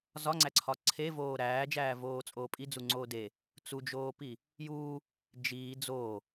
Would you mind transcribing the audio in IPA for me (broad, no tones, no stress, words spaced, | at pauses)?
zɒŋ͡ǀæǀʰɒ ǀʰevoː ɾæːd͡ʒæːvoːt͡sʼoː pʼid͡zuŋ͡ǀoː de | t͡sud͡ʒoːpi | juː | d͡ʒiː d͡zoː